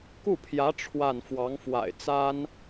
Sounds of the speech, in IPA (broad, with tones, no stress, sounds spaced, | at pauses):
k u˥˩ pʰ j ä˧˥ ʈ͡ʂʰ w a˥˩ n f w ɑ˧˥ ŋ f w a̰˨˩ ɪ̯ t͡s a˥ n